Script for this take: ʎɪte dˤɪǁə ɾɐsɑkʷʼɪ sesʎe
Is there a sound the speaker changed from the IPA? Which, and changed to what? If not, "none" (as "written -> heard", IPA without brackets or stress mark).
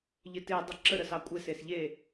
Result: ɐ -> ə